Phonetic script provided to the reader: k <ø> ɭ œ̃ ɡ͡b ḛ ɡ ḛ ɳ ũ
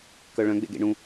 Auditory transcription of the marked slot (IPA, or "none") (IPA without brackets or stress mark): œ